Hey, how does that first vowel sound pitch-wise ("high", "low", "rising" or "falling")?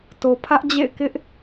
low